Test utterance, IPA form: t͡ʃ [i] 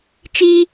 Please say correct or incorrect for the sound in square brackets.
correct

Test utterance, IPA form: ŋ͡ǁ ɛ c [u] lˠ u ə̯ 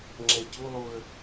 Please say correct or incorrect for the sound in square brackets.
correct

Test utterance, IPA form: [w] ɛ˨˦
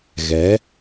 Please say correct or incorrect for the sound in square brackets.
incorrect: ɣ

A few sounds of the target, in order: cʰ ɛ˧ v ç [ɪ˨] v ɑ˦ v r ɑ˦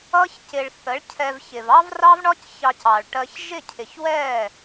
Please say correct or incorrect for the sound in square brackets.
correct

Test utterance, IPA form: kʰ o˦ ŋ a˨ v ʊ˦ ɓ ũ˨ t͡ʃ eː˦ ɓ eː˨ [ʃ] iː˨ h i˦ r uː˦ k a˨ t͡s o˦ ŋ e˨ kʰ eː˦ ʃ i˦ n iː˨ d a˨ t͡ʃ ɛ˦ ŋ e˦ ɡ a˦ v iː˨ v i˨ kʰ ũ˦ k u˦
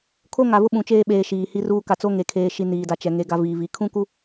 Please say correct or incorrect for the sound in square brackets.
correct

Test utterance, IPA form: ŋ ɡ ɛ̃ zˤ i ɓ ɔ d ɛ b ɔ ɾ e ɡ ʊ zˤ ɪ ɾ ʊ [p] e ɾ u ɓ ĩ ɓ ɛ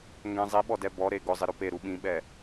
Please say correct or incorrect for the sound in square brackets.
correct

